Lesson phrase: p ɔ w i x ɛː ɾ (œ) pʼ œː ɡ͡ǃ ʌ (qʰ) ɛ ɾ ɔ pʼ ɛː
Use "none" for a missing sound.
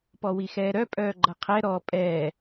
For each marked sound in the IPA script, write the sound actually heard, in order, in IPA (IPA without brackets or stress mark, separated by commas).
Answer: œ, qʰ